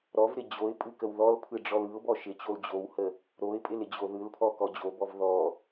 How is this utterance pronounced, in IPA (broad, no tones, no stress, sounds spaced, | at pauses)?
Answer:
ɾ ɔ v ɾ ɪ d͡ʑ o ɪ̯ pʼ ɯ k ə w ð ɔ l pʰ ɯ ɖ͡ʐ ɔ l ɯ ʊ̯ b ɔ ʃ ɪ t͡ɕ o l d͡ʑ o w h ə | ɾ o ɪ̯ pʼ ɪ l ɪ d͡ʑ o ð ɯ l pʰ ɔ k ɔ d͡ʑ o b ɔ v ð ɔ